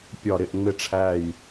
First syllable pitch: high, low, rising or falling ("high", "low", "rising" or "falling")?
falling